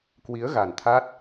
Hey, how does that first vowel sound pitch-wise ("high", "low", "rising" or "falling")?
rising